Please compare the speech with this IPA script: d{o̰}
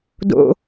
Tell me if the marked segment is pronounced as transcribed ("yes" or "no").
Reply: yes